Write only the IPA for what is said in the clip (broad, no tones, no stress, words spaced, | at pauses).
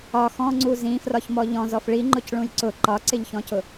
ɒ xɔ̃ŋ͡ǀu zĩfrɒçmɔ ʎɔ̃zɔf ɭiŋ͡ǃʊcɭũj ǀʊ ǃɒǀɪʎçɔ̃cʊ